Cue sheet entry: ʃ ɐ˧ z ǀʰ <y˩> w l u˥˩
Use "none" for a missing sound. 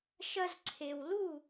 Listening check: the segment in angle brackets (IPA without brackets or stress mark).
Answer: e˩